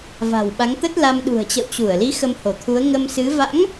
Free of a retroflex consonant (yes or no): yes